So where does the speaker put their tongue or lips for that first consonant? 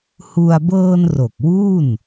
throat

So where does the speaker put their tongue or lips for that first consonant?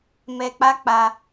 lips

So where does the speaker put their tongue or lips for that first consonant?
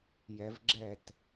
palate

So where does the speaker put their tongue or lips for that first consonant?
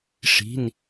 retroflex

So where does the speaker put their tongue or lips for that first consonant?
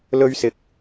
tongue tip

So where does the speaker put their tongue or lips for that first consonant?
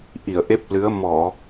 throat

